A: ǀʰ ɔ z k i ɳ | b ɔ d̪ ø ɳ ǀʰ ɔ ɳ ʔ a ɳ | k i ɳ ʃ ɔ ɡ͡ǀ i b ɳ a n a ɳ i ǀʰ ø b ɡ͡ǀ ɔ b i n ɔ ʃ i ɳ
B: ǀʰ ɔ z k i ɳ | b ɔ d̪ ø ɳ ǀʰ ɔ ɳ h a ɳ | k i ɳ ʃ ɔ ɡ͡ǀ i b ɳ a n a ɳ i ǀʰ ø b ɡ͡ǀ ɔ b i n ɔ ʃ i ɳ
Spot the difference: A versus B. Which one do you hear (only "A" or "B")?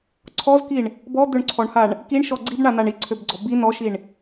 B